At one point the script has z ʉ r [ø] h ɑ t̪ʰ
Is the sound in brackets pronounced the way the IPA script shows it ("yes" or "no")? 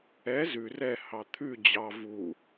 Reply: no